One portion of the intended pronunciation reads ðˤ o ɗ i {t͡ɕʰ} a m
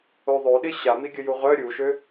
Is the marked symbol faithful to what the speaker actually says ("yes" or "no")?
no